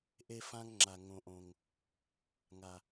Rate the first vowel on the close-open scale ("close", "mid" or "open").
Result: mid